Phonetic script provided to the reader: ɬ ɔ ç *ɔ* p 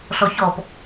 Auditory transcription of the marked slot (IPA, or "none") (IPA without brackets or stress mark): ɔ